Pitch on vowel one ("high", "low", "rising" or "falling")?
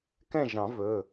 falling